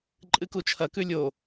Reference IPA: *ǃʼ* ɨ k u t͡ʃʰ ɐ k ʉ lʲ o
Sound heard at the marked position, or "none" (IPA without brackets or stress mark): ǃʼ